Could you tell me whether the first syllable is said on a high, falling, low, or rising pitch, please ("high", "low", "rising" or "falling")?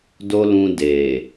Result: high